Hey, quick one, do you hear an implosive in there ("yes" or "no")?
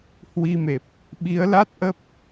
yes